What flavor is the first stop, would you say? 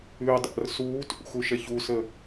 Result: plain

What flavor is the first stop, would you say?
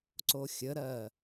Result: click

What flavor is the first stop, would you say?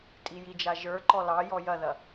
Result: ejective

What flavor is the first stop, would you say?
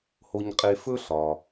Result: ejective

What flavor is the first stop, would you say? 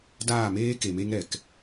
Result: plain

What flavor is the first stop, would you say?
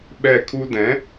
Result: implosive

